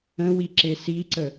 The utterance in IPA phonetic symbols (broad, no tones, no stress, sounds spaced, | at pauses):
ə̃ w i ǁ e s i ǀ ə